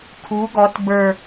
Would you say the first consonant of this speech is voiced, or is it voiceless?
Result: voiceless